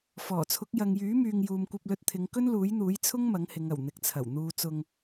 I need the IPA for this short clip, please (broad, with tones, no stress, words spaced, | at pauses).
fɔː˨˩t͡sʰʊ˨˥k̚ jɐ˨ŋjyː˨˥myː˨ŋ juː˨mkʷɐ˧p̚lɵ˧t̚t̪ʰɪ˨˧ŋ kɵ˥nluː˨˥jn̪uː˨˥j t͡sʰʊ˥ŋ mɐ˨˥ŋhɪ˨˧ŋɐ˨˩w n̪ɪ˨k̚t͡sʰɐ˨˩w n̪uː˨ t͡sʊ˨ŋ